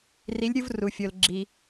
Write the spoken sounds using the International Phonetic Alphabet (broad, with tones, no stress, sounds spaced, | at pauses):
r i˨˦ lʲ ɾʲ u˦ v r u˩ fʲ o˩ l ɡ͡ǁ i˩